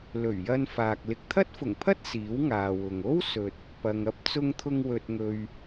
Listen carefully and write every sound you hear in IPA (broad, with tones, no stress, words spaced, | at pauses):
lɵ˨˩ɥjɐ˧nfaː˨k̚ lɪ˨k̚t̪ʰɐ˥t̚fʊ˨˩ŋpʰɐ˥t̚ siː˨˥wŋaː˨wʊ˨ŋ o˥wsɵ˨t̚ | pɐ˨ŋɐ˥p̚ t͡sʊ˧ŋt̪ʰʊ˧ŋ wɵ˧t̚ŋɵ˧ɥ